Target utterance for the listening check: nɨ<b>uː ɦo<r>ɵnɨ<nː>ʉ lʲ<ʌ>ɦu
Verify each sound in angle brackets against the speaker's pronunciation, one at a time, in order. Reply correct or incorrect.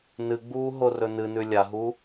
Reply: incorrect, correct, incorrect, incorrect

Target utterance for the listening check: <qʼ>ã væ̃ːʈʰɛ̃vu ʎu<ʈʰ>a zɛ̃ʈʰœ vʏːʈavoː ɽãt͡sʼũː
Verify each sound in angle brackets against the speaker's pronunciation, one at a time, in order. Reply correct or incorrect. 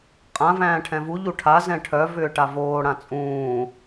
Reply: correct, correct

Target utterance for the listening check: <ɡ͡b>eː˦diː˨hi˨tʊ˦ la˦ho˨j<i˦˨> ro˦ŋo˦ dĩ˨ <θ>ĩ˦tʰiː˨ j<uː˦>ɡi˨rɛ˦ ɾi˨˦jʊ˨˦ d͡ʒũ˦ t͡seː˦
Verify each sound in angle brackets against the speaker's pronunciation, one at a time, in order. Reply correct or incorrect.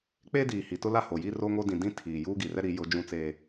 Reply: incorrect, incorrect, incorrect, correct

